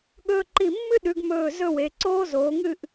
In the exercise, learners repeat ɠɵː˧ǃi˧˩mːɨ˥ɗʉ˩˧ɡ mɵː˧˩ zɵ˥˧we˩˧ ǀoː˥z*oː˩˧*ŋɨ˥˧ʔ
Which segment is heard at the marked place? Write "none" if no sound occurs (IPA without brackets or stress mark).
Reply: oː˩˧